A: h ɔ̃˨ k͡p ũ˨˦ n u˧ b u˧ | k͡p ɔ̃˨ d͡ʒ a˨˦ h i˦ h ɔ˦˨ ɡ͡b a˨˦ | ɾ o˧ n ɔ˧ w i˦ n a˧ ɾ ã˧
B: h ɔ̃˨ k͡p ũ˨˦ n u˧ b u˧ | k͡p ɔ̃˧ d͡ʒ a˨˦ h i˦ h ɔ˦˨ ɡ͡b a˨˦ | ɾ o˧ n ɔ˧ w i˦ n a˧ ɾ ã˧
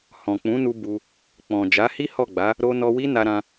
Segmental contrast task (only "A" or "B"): A